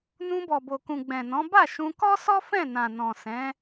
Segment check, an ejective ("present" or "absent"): absent